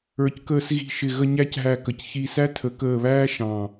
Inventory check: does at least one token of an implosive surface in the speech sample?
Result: no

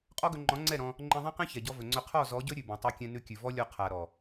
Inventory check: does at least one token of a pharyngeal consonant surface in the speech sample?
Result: no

